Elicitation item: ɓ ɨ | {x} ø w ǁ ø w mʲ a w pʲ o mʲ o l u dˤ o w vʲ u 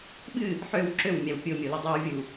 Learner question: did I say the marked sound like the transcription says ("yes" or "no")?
no